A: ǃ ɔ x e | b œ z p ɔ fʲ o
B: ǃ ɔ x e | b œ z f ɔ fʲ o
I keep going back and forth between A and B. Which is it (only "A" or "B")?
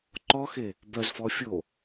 B